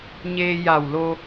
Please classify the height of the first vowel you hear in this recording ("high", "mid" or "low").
mid